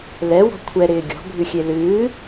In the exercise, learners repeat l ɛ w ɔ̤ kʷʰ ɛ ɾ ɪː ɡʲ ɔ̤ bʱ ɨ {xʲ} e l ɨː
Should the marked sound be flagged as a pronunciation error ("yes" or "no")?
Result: no